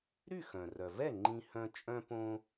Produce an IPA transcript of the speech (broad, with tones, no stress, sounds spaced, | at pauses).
ɾ y˥˩ x œ̃˩ r œ˩ v ɛ˥˩ ŋ͡ǃ ĩ˧ h œ̃˧ t͡ʃʼ œ̃˥ p õ˥